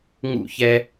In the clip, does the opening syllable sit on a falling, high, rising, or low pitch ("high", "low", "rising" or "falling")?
falling